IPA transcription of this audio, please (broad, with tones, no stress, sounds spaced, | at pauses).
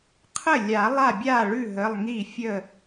qʰ ə˥˩ lʲ a˨˩˦ lˠ a˥˩ bʲ a˥˩ ɭ ʉ˥˩ ɦ ə˩˧˩ lˠ ŋ i˥˩ fʲ ə˥˩